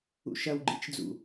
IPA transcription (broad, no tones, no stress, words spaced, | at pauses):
ṵʃɐwɡ͡ǃit͡ʃ d͡zṵ